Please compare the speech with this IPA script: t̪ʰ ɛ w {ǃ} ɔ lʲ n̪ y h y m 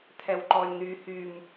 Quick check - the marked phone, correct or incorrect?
correct